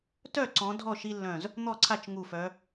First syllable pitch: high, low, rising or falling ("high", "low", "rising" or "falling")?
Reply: falling